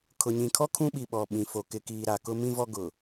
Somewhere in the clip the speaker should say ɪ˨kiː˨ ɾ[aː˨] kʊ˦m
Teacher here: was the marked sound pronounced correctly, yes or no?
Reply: no